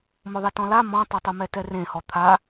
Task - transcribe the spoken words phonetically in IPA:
mʊðˤetɔ̃la mɔ̃tˤotˤʊmɛ tɛrẽhɔ t̪ʰa

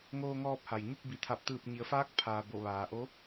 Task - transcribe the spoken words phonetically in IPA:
ŋoː˧ŋɔː˧p̚ha˩j ɲu˥˨k̚ bi˩˧t̪ʰa˧˩p̚ t̪ɯː˧˩p̚ɲi˩˧ə̯faː˧˥k̚ pʰaː˩ bo˧˩ʋaː˩ʔo˧˥

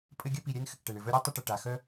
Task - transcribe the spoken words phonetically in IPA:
pʼɘ˥ ɡʲœ˥pi˨ɾʲɛ˥n xɘ˩kʈɛ˩ɳɘ˩vœ˦ ɾʲe˥tˤɘ˦ʈə˩ ʈa˩ xœ˦

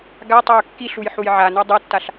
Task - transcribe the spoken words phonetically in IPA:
ɡa tˤaʊ̯kːiɬuj ħujʕano dˤɤtːaɬ

